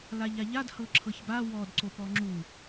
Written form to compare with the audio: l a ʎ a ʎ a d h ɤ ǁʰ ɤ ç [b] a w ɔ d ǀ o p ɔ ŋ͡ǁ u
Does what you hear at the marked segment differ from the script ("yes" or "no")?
no